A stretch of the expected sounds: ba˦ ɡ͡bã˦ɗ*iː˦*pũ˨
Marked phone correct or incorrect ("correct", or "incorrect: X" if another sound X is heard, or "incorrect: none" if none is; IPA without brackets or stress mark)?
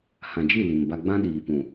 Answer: incorrect: iː˨